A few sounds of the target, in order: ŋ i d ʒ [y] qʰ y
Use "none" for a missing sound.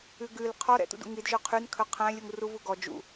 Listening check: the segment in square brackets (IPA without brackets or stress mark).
ø